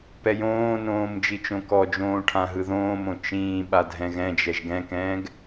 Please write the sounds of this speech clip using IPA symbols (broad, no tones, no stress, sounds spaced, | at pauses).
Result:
p ɛ j õː n õː m d͡ʒ i t͡ʃ õ k ɔ d͡ʒ õː ʈʰ ã ɦ ɯ ð õː m õ t͡ʃ ĩː ɓ a dʱ ɛ̃ ɣ ɛ̃ d͡ʒ ɛ ʒ ɡ ɛ̃ k ɛ̃ː ɡ